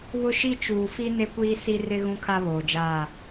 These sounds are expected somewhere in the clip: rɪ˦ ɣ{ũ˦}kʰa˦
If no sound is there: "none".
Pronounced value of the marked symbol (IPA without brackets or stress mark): ũ˦